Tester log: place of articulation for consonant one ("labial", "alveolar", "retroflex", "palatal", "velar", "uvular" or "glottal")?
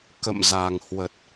velar